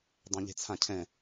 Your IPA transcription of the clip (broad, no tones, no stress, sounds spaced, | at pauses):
dˤ ẽ ʎ e̤ t͡sʰ ã cʰ ɛ̃